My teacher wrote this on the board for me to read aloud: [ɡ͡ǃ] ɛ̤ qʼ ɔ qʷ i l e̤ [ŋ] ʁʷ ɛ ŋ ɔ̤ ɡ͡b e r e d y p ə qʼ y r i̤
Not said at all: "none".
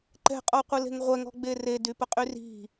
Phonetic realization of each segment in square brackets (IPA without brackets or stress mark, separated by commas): ǃ, ŋ